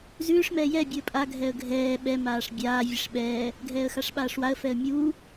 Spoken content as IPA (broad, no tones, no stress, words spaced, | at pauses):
zʉːʂ mɛːjɛ bʲuə̯pʼa ɡʱɛə̯ɡʱɛː ɓɛ maːʂbʲaː vʲeʂɓɛː | ɡʱɛːə̯xaʂɓaːʂwaə̯ fɛə̯mʲuː